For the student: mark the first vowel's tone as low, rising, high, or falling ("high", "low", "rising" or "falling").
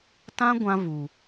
high